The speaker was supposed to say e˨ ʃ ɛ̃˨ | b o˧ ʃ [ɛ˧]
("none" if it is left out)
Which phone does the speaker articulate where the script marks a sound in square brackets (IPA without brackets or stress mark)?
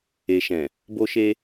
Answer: e˧